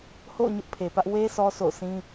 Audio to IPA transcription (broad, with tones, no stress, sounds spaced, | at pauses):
h o̰˦˨ ʊ̯ ɲ ʊ˦ ʔ pʰ e˨ p ä˦ ʔ w e˦ sʰ ɔ˦ sʰ o̰˦˨ ʊ̯ sʰ ĩ˦